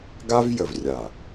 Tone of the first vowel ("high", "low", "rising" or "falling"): high